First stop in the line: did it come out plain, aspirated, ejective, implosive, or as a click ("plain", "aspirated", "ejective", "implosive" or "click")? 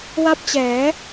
plain